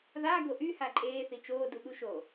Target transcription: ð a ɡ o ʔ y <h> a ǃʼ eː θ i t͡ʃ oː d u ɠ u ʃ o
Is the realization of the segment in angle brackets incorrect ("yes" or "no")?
no